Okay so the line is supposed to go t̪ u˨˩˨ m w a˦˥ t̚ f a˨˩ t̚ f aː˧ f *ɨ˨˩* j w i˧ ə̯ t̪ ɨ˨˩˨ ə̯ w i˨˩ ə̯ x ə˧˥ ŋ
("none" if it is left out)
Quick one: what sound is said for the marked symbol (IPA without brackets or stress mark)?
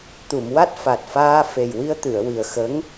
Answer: e˨˩